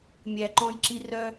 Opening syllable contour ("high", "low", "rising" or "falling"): low